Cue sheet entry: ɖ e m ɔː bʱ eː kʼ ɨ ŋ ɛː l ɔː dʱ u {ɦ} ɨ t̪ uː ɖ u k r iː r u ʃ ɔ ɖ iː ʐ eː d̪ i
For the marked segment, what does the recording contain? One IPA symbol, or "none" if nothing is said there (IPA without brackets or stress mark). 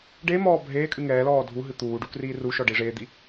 ɦ